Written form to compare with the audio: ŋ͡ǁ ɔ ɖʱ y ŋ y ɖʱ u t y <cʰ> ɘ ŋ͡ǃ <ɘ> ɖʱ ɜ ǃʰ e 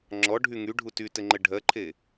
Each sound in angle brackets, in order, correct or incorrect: incorrect, correct

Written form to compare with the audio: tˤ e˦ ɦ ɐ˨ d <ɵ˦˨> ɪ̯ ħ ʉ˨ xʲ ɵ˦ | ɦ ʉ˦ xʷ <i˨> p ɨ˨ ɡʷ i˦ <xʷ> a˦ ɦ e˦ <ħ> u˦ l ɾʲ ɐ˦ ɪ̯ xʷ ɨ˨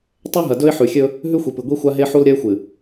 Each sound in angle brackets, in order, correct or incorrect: incorrect, correct, correct, correct

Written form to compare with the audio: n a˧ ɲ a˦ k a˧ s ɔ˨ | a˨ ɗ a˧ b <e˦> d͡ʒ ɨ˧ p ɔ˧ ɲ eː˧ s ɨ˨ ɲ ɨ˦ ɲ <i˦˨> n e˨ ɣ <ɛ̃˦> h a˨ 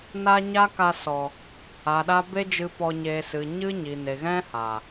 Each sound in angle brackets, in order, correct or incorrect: correct, incorrect, correct

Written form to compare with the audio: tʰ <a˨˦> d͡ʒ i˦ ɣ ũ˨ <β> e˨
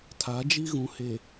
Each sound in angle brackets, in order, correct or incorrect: correct, incorrect

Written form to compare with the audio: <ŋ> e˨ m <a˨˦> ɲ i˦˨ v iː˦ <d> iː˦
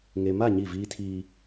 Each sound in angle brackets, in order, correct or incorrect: correct, incorrect, incorrect

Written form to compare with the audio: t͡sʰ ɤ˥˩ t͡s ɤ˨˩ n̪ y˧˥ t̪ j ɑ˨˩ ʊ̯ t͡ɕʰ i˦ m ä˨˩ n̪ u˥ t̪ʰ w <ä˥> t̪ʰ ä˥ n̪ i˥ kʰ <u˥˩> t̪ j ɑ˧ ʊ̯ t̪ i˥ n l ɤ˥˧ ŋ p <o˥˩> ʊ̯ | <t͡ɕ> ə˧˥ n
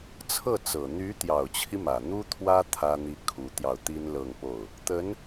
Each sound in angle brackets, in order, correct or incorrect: correct, incorrect, correct, incorrect

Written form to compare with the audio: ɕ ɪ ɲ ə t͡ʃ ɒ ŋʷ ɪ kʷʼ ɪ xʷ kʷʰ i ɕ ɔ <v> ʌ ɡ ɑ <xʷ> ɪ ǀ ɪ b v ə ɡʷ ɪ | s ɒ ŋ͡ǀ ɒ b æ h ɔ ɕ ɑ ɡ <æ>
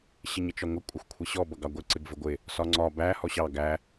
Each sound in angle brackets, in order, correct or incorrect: incorrect, incorrect, correct

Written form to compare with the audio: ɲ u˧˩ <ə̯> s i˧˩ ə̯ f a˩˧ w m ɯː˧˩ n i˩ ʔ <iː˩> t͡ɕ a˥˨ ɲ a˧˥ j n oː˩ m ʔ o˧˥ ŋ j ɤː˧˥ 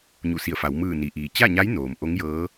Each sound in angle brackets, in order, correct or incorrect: incorrect, correct

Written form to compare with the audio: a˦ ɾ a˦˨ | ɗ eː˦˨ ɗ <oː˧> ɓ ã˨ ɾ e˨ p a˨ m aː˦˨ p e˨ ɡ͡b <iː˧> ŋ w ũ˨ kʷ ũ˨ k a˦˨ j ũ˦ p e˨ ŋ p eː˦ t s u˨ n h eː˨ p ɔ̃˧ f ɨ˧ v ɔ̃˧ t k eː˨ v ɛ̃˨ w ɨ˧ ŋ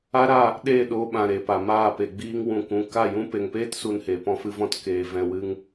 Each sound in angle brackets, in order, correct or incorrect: correct, correct

